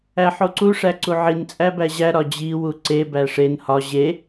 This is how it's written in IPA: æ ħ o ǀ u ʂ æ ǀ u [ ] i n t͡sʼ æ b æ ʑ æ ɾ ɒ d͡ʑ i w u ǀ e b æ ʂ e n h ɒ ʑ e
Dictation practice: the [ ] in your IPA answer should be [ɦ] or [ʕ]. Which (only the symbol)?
ʕ